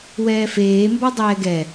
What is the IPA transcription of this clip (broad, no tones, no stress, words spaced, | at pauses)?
wɛːfeːmbɔ dˤɛːɡɛ